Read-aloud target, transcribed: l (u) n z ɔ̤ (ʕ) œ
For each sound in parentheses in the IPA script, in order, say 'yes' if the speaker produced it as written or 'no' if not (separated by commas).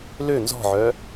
no, yes